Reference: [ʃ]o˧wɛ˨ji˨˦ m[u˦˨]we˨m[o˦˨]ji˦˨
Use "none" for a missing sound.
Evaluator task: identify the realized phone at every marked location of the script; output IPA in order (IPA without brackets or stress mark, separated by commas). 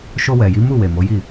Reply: ʃ, u˦˨, o˨˦